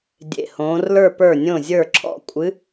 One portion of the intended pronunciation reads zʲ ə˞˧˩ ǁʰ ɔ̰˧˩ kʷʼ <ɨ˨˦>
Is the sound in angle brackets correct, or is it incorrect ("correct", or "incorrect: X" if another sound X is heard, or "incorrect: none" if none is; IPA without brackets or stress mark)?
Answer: correct